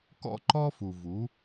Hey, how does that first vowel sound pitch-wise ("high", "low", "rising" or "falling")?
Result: high